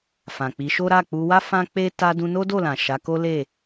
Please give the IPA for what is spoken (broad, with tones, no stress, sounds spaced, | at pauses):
f ã˨ k͡p i˨˦ ʃ o˦ ɾ a˦˨ k͡p u˧ w a˦ f ã˦ k͡p e˦ t a˧ d ũ˧ n o˦ d o˦˨ l ã˨ ʃ a˨˦ k o˦ l e˦˨